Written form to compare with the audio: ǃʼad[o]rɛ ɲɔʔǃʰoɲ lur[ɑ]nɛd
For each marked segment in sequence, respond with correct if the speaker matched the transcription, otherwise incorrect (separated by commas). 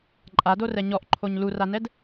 correct, incorrect